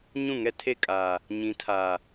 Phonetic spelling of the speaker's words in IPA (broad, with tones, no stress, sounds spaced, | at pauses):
ɲ ũ˦˨ ŋ ɛ˦ tʰ e˦˨ kʼ aː˨ | ɲ ĩ˨˦ tʰ aː˨